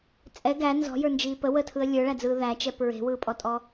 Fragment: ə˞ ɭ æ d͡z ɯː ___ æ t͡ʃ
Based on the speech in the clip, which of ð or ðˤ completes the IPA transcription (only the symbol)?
ð